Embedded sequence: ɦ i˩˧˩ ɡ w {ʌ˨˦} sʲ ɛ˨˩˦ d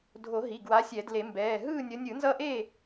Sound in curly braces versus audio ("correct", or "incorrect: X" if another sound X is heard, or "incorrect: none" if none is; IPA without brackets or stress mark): incorrect: a˨˦